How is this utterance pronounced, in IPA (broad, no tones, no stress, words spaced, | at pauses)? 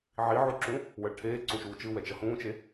ʕiʕoǁũ | wʌɭʈʰeː ǀũʃuːt͡ʃɯ wɛt͡ʃʌhũːt͡ʃe